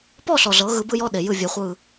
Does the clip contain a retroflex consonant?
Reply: no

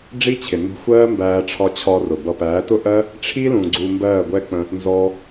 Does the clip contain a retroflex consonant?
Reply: yes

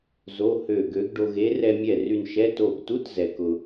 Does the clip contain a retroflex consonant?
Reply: yes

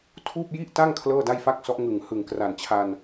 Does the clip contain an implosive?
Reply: no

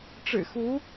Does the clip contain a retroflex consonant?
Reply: yes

